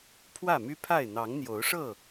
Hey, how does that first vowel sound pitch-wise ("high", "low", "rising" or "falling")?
falling